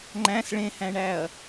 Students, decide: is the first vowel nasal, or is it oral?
nasal